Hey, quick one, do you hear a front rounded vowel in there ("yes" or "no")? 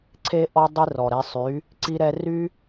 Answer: yes